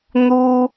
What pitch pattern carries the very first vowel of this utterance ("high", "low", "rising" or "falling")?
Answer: high